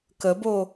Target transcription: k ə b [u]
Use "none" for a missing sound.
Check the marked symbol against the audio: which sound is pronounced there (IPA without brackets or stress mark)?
o